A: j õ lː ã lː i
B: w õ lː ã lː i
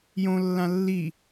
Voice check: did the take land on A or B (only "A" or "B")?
A